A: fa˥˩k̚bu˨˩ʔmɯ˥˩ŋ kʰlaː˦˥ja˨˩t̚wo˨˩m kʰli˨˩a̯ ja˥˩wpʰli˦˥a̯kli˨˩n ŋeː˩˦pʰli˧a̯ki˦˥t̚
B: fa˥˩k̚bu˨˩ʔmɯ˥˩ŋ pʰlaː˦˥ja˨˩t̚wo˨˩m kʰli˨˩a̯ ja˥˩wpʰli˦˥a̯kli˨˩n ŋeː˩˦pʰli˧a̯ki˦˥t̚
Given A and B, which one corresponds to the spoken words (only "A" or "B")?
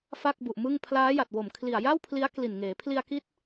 B